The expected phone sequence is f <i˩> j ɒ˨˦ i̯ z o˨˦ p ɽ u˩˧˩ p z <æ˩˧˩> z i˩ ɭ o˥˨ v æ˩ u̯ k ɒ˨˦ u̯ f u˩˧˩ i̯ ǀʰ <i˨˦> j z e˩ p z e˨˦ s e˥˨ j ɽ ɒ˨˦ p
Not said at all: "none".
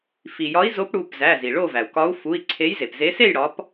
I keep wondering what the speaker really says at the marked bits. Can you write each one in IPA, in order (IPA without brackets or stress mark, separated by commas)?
i˩, æ˩˧˩, e˨˦